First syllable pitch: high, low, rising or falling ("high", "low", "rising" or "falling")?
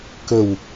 low